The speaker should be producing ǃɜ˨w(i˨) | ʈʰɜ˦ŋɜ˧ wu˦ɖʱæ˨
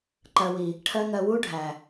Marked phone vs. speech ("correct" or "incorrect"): correct